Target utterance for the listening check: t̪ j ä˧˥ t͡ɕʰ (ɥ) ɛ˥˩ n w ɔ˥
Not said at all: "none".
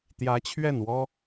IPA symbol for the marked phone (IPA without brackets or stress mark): ɥ